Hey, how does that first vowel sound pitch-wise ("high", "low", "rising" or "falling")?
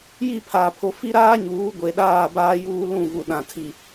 falling